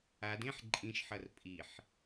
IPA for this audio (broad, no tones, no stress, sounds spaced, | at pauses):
a d ẽ ħ ǃʼ ĩ ʃ ħ ʌ r pʼ i ħ